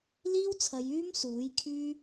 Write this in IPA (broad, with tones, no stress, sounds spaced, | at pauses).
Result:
l iː˥ w t͡sʰ ɐ˨˧ j yː˥ m s uː˨˥ j kʰ yː˥